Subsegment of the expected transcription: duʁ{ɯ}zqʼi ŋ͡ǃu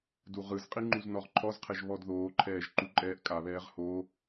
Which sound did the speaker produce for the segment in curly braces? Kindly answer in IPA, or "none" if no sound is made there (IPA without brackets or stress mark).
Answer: ɯ